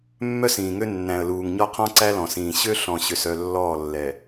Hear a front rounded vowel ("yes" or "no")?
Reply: yes